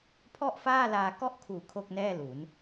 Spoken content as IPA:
pʰ ɔ˥˩ ʔ f aː˥˩ l aː˧ k ɔ˥˩ ʔ kʰ uː˨˩ kʰ o˥˩ k̚ n ɛː˥˩ l u˩˦ n

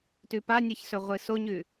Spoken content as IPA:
t ʉ p a nʲ ɨ ç s ɵ ʁʷ ɨ s o ɲ ʉ

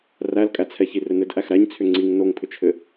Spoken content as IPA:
r æ l kʼ æ t͡sʰ ɛ ç i r ɘ n ɘ d ʔ æ x ɾ æ ɲ t͡sʰ ʏ ŋ͡ǀ i ŋ n o ŋ pʰ ʏ t͡ʃʰ ɘ

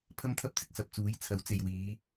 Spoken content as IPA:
pʰ ɐ˥ m t̪ʰ ɐ˥ p̚ t͡s ɪ˧ k̚ s ɐ˨ p̚ t͡s uː˨˥ j t͡sʰ ɐ˨˥ w t͡s e˨ j w iː˨˧

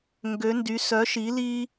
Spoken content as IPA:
ŋ ɡ ø˨˦ n d y˨˦ s œ˨˦ ʃ i˨˦ l i˦

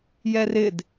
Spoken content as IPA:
j ɛ r ɪ d

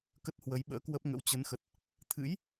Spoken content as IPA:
k ə˦˥ t̚ h w ə˨˦ j ɓ ə̰ː˧˥ k w ə˦˥ p̚ ŋ ə̰˧˥ w t͡ɕ ə˨˦ n x ə˨˩ t̚ | t̪ʰ ɨ̰˧˥ j

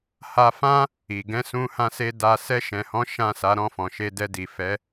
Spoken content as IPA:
h a˧ f ã˦ | i˨ ɡ ɛ̃˨˦ s ũ˧ h ã˧ s e˧ d a˧ s ɛ˧ ʃ ɛ̃˨ h ɔ̃˨˦ ʃ ã˦˨ s a˨˦ ɾ ɔ̃˧ f ɔ̃˨ ʃ e˧ d ɛ˧ d i˨ f ɛ˨˦

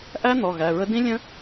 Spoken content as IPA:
ʔ æ˦˥ n̪ ɔ˩˧˩ ɣ æ˩˧˩ ɹ ə˦˥ d ĩ˦˥ lʲ ə̃˦˥

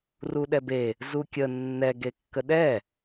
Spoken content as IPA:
r u ɗ ɛ b e | z u kʲ ə nː ɛ ɡ e kː ə ɗ ɛ

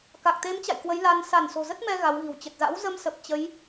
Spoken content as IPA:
k a˨˩ k̚ t̪ e˨˦ m t͡ɕ a̰˧˨ j k w ə˨˦ j l a˧ n s a˧˩ n s o̤˨˩ z ə˦˥ t̚ m ɛ˧ ɣ a˨˦ w ɣ i̤˨˩ w t͡ɕ ə˨˩ t̚ z a̰˧˥ w z ə˧ m s ə˨˩ p̚ t͡ɕ ə˨˦ j

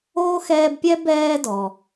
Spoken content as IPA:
oː˥ x ɛː˦ b pʲ ɛ˥ b ɛː˦ d ɔ˨

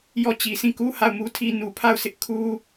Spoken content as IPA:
j ɔ˦˨ t͡ɕ i˨ sʰ ĩ˦˨ k u˦ h a˦˨ ʊ̯ m u˦ tʰ i˦ n u˨ pʰ a˦˨ ʊ̯ sʰ ɪ˦ ʔ kʰ u˦

